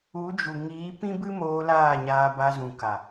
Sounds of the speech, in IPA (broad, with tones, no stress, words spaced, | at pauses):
u˨˦d͡ʒu˨ŋiː˨˦ pĩ˦bɨ˦moː˧ laː˦˨ɲaː˧ba˧zũ˨ ka˨